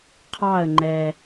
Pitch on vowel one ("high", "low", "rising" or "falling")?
falling